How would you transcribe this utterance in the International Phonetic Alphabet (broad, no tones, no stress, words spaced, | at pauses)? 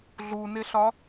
ɮunɪɬɒ